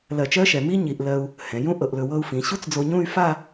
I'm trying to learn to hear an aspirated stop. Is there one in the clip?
no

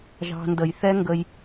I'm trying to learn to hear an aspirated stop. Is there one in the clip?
no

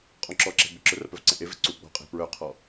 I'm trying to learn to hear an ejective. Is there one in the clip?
yes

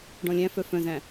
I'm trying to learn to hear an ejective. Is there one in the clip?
no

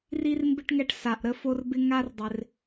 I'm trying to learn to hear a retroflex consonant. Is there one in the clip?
yes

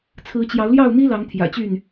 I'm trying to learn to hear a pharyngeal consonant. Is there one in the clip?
no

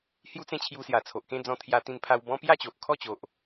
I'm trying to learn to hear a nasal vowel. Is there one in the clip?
yes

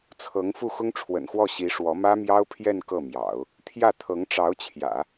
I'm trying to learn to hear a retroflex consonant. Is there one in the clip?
yes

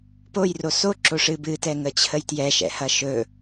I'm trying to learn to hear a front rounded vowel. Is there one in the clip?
no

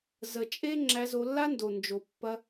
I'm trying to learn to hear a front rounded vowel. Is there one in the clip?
no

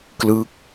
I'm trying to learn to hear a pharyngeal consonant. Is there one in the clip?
no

